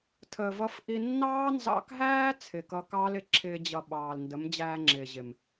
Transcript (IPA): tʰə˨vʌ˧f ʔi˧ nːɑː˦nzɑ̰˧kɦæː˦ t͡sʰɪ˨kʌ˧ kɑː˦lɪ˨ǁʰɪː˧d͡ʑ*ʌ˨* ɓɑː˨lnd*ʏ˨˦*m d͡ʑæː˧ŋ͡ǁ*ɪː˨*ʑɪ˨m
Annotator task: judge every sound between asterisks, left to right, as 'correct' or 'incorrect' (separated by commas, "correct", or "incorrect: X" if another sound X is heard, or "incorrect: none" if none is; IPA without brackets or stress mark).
correct, incorrect: ə˨˦, correct